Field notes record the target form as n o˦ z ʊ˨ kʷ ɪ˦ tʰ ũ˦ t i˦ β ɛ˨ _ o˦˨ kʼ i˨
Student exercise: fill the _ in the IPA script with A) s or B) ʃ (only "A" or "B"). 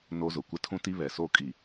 A